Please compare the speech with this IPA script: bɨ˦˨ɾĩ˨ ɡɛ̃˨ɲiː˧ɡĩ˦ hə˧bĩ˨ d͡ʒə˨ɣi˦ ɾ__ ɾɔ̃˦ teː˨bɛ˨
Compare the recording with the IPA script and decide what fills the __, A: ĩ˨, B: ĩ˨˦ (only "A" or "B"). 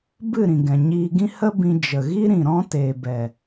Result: A